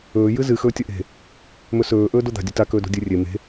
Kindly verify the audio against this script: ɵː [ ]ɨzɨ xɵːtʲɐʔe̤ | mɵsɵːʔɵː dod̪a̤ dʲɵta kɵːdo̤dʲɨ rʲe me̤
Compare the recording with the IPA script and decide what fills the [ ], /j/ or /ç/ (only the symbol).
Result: j